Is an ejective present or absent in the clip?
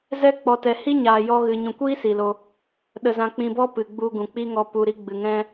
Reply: absent